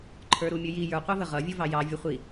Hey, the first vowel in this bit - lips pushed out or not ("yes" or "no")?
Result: no